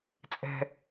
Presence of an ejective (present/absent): present